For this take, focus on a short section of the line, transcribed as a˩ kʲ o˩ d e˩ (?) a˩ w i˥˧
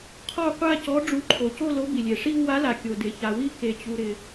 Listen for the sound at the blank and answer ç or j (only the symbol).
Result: ç